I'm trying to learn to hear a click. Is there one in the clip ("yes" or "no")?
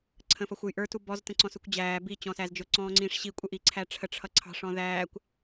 yes